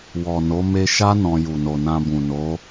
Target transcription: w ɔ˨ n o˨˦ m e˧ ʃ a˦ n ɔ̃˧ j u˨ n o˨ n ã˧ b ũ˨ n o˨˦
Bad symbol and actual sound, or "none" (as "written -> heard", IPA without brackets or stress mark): none